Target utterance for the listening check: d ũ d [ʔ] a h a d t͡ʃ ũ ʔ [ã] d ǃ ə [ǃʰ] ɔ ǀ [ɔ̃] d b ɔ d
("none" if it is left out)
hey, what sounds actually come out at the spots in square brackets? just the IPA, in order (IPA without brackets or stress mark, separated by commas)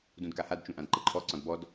k, ã, ǃʰ, ɔ̃